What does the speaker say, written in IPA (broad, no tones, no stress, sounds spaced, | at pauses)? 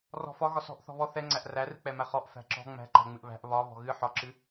r ɔ̤ f ɒ ɣ ɒ s ɔ̤ ʔ θ ɔ̤ β ɔ θ ɛ ŋ͡ǀ æ ʔ r æ r ɨ k͡p ɛ m æ χ ɔ ʔ f æ̤ ǁ ɔ̤ ŋ͡m æ̤ ǃ æ̤ ŋ͡m ɨ ʔ β æ̤ ʔ β ɒ β ɔ̤ ɣ ɨ ħ ɒ ǁ ɨ